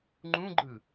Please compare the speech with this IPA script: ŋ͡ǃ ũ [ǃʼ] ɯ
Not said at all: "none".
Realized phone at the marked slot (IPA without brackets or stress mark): ɡ͡ǃ